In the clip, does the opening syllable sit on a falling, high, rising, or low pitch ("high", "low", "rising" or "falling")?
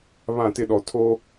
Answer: falling